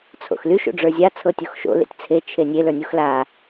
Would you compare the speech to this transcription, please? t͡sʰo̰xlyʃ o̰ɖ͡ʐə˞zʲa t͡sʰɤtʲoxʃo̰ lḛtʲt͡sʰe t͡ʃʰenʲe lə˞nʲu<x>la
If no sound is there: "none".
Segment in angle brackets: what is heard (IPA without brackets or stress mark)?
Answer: x